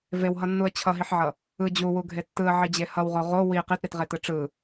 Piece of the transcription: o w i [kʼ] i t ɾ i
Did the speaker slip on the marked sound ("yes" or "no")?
yes